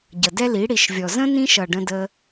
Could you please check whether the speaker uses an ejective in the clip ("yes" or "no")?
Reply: no